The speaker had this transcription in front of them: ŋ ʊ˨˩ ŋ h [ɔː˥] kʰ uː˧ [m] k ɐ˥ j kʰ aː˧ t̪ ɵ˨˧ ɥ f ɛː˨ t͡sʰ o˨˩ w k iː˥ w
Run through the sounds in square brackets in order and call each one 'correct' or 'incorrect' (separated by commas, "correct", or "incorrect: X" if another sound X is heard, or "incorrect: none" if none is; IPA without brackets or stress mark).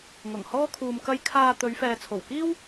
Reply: correct, correct